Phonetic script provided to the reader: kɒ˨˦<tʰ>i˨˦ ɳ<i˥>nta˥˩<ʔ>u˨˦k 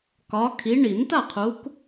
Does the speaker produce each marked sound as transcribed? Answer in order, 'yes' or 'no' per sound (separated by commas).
no, no, no